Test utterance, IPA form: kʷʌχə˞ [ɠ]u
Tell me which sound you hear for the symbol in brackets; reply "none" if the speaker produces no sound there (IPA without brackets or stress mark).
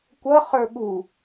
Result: ɠ